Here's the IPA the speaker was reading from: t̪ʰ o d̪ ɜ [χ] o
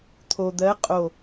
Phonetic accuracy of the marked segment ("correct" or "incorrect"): incorrect